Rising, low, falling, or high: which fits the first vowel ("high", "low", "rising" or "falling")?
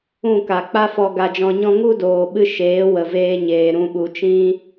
falling